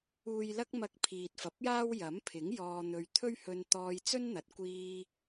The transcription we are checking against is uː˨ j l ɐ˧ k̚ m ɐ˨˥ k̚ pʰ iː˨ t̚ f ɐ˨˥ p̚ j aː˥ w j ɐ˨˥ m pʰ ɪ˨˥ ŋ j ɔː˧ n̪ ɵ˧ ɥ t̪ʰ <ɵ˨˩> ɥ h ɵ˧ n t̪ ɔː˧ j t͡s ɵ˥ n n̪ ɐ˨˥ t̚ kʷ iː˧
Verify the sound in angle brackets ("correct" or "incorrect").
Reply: incorrect